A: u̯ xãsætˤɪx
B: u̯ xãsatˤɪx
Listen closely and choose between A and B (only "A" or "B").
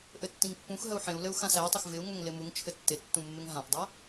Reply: A